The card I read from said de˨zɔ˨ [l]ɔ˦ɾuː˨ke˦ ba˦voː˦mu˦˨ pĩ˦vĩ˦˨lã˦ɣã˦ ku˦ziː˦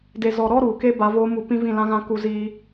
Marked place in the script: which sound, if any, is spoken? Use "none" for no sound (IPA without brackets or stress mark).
ɾ